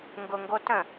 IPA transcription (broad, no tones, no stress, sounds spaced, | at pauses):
ŋ ɡ ʊ ŋ ɡ o t ə̃